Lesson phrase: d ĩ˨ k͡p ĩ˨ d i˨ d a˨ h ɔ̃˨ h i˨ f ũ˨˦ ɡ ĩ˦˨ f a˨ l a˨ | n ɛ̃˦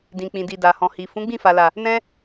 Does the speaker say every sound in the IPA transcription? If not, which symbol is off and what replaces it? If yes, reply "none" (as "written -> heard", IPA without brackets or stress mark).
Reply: ɡ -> ɡ͡b